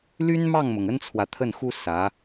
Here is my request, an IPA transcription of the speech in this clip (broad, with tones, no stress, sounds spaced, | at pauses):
l y˥ n m ɑ˥˩ ŋ m ʊ˩ ŋ ə˥ n t͡sʰ w ä˨ t̪ʰ ə˥˩ n x u˥ s ä˧˥